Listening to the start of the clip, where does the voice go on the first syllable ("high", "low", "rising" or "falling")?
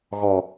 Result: low